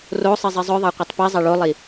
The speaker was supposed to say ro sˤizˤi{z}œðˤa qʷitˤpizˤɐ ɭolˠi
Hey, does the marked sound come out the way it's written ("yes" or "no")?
no